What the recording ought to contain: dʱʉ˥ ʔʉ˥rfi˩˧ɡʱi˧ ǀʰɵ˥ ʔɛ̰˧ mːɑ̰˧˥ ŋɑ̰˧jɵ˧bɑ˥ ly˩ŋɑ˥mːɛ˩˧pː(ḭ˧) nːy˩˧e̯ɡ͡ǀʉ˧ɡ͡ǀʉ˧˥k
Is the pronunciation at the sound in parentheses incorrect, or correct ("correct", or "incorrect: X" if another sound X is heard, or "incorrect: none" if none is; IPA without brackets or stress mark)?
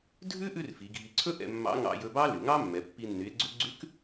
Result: incorrect: i˧